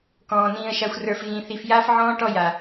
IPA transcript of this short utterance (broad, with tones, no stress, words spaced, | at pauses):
kɔ̃ː˨ nĩː˨ə̯ʃa˨xʷrə˞˨f ɣĩ˨θi˨f jaː˦f ʕɔ̃ː˦ʈɔ˦˨ja˨